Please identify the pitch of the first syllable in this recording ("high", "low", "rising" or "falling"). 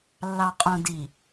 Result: low